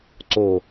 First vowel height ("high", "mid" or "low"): mid